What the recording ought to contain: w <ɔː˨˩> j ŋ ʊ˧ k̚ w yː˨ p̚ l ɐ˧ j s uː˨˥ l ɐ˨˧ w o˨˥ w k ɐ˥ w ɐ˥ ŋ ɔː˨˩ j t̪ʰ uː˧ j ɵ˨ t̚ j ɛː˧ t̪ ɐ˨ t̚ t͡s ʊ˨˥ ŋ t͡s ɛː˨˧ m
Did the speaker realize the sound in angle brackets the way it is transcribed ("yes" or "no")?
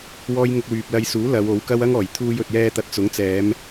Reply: no